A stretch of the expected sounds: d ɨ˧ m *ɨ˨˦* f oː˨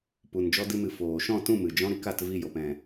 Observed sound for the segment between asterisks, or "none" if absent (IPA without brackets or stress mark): ɨ˨